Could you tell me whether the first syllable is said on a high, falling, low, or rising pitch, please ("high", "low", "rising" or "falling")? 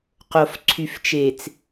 low